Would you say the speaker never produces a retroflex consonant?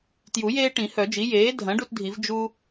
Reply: no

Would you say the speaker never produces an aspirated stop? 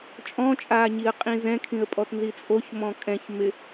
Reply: no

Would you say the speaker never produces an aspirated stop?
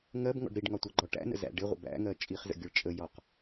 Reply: yes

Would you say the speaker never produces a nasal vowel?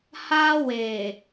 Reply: yes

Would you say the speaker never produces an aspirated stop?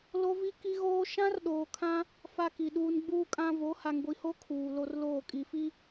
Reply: no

